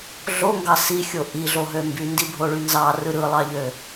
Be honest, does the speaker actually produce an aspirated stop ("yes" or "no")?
no